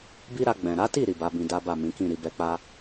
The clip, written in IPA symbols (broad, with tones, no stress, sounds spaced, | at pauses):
b i˦ ɾ a˧ ɡ͡b ɛ̃˨ ɾ a˨˦ t i˦˨ ɾ i˨ b a˨˦ b ĩ˧ d a˦ b a˦˨ m ĩ˨˦ k ĩ˦˨ ɾ i˨ b ɛ˧ k͡p a˦